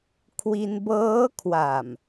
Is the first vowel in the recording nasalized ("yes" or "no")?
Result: no